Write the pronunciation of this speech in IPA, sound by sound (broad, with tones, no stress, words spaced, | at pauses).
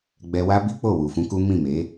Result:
ɡ͡bɛ˧wa˦bi˦k͡po˦˨ wu˨ fũ˧ ku˦ mĩ˦˨me˨˦